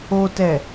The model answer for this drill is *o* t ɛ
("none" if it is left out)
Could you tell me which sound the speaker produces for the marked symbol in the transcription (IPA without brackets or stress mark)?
o